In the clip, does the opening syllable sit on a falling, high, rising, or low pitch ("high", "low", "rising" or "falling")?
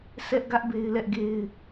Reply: high